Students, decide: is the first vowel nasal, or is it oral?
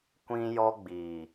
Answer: nasal